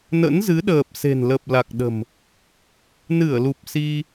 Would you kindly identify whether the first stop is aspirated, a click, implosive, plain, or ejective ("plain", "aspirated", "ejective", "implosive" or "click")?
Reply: implosive